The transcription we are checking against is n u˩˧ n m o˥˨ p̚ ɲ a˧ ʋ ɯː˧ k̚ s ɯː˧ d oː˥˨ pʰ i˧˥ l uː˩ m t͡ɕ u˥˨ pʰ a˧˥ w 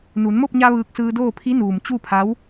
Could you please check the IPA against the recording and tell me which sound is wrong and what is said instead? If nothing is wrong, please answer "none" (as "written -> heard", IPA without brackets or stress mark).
l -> n